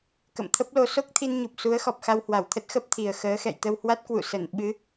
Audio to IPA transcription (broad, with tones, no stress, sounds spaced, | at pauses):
k ə̰˧˨ m t̪ʰ ə˦˥ p̚ l o˧ s o˦˥ k̚ t̪ʰ i˧ n ɲ u˨˩ p̚ s u˨˦ ə̯ x ɔ˨˩ p̚ x a˧ w h w a˧˩ w t̪ʰ ə˦˥ t̚ x ə˦˥ p̚ t̪ʰ i˨˩ ə̯ x əː˨˦ x ɛ̰˧˨ j t̪ ə˧ w h w a˦˥ t̚ k w ṵ˧˨ s ə˧˩ n ɓ ɨ˨˦